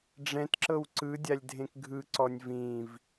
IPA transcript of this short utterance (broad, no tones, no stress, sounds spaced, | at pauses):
ɖ͡ʐ ɛ̃ t ǁ ɤ w ǀ ɯ dʲ a lʲ dʱ ẽ k ɡʱ ɯ ǀ ɔ nʲ v ĩ v